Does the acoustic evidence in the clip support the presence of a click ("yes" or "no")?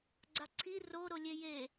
yes